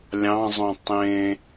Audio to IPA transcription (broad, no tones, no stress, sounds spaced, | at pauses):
lʲ ɑ̃ zˤ õ tˤ ẽ